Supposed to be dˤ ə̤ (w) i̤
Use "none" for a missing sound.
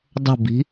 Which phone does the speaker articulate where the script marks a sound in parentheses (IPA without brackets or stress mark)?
b